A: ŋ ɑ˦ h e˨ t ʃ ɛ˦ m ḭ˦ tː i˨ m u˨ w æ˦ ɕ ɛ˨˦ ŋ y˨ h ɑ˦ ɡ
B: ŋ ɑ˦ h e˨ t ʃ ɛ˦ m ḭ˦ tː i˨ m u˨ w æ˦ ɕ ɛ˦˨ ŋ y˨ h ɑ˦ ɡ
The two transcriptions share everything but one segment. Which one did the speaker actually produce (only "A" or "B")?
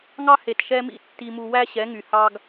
A